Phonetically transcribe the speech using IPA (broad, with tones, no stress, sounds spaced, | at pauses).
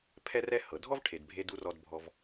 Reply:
pʰ ɛ˥ r ɛ˥ h ɤ˩ dʱ ɔ˥ v ʈʰ e˩ d bʱ e˧ d u˧ r ɔ˧ d bʱ ɔ˧ v